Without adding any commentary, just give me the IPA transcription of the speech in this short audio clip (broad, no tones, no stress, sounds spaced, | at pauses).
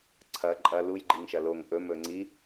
ǀʰ ɐ ǃʼ ɐ l u j ɡ͡ǃ i ŋ ʃ ɐ l o ŋ ʔ ɵ m ɵ ŋ͡ǀ i